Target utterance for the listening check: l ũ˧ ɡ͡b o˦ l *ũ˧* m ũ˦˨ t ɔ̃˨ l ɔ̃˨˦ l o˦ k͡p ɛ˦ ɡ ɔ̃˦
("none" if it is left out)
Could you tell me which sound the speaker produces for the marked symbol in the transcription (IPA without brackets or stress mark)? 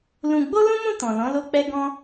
ũ˦